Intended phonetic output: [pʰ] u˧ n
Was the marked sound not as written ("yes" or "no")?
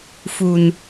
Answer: yes